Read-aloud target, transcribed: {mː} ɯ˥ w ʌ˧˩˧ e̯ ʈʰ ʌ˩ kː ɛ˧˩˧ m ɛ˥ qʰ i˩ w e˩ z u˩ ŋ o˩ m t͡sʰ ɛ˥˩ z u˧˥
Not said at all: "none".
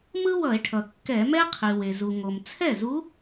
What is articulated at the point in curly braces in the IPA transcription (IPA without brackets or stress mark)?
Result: m